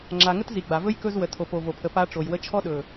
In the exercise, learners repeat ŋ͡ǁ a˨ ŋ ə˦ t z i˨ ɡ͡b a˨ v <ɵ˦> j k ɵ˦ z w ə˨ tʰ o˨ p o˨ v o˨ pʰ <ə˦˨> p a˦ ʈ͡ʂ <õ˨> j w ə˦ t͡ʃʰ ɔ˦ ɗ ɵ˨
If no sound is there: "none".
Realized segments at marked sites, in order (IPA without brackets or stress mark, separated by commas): ɵ˦, ə˨, o˨